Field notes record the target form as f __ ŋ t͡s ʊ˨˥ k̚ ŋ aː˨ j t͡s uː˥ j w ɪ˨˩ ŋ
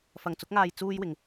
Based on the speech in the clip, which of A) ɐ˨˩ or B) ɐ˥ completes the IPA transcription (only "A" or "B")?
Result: A